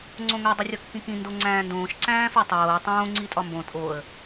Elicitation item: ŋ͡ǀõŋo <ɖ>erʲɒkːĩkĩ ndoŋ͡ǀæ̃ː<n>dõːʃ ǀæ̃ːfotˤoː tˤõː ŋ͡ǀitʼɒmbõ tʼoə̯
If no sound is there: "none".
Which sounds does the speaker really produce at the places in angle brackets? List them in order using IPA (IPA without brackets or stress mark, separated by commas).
dˤ, n